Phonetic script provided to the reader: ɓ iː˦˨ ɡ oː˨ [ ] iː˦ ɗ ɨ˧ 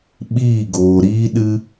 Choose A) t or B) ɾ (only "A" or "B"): B